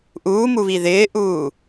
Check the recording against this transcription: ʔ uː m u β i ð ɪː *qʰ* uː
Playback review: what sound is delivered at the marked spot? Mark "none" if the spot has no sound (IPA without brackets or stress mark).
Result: ʔ